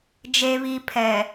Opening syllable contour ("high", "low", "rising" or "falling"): low